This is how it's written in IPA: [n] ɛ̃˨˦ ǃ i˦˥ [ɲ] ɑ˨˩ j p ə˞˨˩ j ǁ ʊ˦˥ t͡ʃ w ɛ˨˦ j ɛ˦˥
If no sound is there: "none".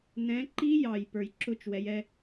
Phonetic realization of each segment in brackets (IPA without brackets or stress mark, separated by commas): n, j